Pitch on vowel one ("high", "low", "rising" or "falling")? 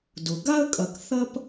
low